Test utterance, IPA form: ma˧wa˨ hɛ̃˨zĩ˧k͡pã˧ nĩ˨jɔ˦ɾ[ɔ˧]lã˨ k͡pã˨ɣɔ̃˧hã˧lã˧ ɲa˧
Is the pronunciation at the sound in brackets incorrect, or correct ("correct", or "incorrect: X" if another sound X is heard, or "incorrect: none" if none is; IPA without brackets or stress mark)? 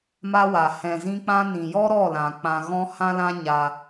incorrect: ɔ˦˨